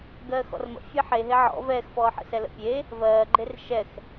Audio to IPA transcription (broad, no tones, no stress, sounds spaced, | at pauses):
ɡ ɜː x ɔ̰ r m ə̰ fʲ ɛ ħ e ɦ e ʕ ɔ̰ v ɛː x f ɔː ħ ə̰ s ɛ l ə̰ pʲ e | v ɜː ɡ͡ǃ e r ʃ ɛ x